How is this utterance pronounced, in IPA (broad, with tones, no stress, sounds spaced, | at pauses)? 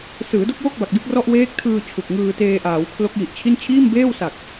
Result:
s ɯː˩˦ d o˥˩ k̚ w o˥˩ k̚ b a˨˩ k̚ d ɯ˥˩ k̚ r ɔ˥˩ ʔ w eː˦˥ k̚ tʰ ɯː˧ t͡ɕʰ u˨˩ k̚ ŋ ɯː˧ t eː˧ ʔ aː˩˦ w kʰ l o˦˥ k̚ j i˨˩ ʔ t͡ɕʰ i˥˩ n t͡ɕʰ iː˥˩ m b eː˥˩ w s a˨˩ k̚